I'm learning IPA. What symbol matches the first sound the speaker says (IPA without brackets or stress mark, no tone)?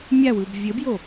mʲ